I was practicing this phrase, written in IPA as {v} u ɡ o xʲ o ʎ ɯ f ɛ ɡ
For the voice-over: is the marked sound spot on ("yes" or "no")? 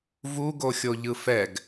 yes